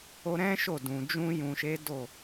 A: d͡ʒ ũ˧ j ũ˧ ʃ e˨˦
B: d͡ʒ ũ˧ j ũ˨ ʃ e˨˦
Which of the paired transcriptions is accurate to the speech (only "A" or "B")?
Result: B